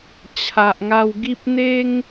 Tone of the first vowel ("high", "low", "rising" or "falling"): low